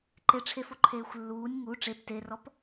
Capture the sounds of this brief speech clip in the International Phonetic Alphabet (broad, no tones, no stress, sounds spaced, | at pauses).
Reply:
ǃ e ʈ͡ʂʰ e f o ǃʰ eː xʷ lː uː nʲ ŋ u ʈ͡ʂ e p t e r ɔ p